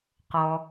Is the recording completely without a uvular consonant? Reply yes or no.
no